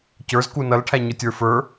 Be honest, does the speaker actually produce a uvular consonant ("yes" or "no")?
no